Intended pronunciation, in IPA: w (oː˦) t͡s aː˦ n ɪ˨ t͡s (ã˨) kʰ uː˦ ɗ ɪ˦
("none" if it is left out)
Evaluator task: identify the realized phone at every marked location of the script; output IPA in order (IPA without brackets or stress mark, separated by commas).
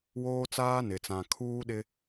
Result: oː˦, ã˨